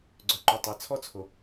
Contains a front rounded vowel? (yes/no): yes